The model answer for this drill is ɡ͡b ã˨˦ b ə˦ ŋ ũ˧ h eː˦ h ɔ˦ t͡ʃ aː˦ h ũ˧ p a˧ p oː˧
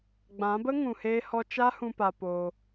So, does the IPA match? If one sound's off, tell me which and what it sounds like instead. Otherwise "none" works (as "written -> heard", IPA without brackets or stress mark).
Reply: aː˦ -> a˦